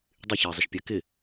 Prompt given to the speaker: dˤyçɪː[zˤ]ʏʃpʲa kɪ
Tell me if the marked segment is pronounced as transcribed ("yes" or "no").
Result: yes